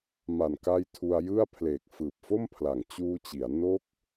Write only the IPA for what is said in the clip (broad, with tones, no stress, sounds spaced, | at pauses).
m a˨˩ n k a˧ j tʰ u˧ a̯ j ɯ˥˩ a̯ pʰ l eː˨˩ k̚ f ɯː˨˩ p̚ f o˥˩ m pʰ l a˨˩ ŋ t͡ɕ uː˧ t͡ɕ i˩˦ a̯ n o˦˥ k̚